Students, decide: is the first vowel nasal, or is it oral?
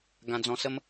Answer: nasal